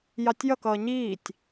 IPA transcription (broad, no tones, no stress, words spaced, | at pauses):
jɑtʲjʌkʌː ɲiːtʲ